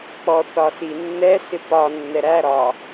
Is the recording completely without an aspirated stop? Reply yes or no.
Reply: yes